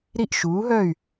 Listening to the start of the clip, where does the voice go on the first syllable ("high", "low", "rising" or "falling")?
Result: falling